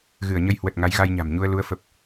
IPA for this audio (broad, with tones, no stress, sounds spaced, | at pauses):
ɣ ɨ˧˩ ə̯ ɲ ə˧ j h w ə˨˩ t̚ ŋ a˨˦ j ɣ a˧ j ɲ a̤˨˩ m ɲ u˧ ə̯ l u˨˦ ə̯ f ə˨˩ p̚